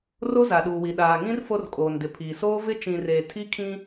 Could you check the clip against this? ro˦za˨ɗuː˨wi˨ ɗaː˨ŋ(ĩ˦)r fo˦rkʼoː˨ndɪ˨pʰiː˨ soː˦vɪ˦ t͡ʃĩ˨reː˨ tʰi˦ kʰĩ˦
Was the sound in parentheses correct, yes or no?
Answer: yes